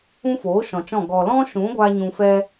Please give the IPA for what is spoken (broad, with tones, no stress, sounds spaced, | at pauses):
ũ˦ f oː˨˦ ʃ ɔ̃˨ t͡ʃ ɔ̃˦˨ ɡ ɔ˨ l ɔ̃˦ ʃ ũ˨˦ ɡʷ a˧ ɲ ũ˧ f ɛ˦